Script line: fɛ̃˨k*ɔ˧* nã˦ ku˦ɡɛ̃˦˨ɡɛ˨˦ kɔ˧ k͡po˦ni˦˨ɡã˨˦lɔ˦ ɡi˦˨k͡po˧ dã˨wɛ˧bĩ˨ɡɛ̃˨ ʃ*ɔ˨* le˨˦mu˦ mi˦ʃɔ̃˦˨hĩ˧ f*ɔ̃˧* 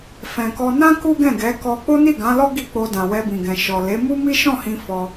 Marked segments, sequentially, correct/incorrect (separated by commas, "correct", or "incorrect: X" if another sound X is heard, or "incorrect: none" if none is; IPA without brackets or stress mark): correct, correct, incorrect: ɔ˧